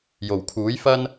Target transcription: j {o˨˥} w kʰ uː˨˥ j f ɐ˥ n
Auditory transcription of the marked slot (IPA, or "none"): o˨˩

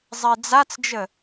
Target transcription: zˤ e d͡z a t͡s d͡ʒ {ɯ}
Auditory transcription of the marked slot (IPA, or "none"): ə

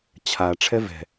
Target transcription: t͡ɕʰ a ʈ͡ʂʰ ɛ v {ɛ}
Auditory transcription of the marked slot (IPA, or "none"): ɛ̤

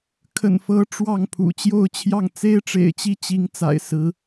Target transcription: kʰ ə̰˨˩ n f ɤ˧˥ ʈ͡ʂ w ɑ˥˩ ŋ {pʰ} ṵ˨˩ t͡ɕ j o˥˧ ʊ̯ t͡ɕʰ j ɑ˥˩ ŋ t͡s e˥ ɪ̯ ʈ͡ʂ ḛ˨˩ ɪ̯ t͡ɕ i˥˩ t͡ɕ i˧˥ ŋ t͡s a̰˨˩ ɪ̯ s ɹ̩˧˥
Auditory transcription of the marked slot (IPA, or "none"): pʰ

